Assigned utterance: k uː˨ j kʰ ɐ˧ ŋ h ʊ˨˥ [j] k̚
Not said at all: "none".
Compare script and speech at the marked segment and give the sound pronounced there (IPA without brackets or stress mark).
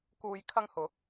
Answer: none